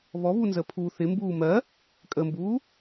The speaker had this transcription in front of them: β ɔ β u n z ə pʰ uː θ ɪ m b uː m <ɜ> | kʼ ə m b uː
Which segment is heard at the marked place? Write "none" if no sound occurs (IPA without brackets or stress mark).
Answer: ɜ